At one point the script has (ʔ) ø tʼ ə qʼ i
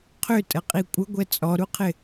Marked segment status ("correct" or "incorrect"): incorrect